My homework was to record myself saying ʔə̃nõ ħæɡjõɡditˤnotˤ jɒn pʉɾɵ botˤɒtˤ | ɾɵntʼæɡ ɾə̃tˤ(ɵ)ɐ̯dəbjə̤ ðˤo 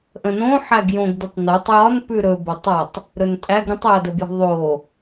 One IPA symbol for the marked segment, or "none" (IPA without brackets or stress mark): ɵ